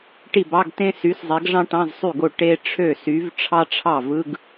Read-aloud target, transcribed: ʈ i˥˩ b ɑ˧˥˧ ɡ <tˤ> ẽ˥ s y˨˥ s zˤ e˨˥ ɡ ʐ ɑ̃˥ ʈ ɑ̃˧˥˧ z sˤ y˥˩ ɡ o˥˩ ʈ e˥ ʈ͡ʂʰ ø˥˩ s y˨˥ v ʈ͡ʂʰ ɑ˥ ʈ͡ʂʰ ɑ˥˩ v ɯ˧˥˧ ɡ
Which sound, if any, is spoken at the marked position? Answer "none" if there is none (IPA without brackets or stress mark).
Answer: t